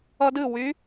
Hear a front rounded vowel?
yes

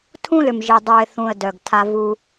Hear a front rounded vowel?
yes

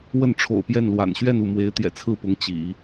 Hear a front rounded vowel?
no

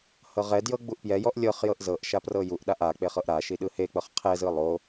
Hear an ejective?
no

